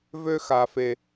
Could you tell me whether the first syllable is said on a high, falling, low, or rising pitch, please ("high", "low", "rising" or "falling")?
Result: high